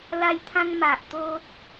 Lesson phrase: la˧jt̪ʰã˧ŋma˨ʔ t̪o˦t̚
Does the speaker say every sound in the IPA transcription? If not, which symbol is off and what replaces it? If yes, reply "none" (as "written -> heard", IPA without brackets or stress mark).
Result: none